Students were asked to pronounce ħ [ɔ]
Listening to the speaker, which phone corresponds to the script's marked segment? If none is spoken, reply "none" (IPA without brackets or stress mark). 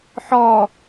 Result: ɔ